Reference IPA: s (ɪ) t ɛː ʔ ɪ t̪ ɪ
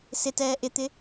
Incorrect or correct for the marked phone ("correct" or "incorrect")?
correct